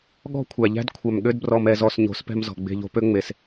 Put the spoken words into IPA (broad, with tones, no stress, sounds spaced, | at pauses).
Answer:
ɠ ɔ̤˦ kʷʰ æ˨ ʎ æ̤˦ d kʷʰ œ˨ m ɠ ø˦ d b r ɔ˧ m ɛ˧ z ɔ˧ s ɲ o̤˨˦ s p ɛ̤˧ m z ɔ̤˨ ɡ͡b e̤˧ ʎ o̤˦ p ø˦ ŋ͡m e˨ s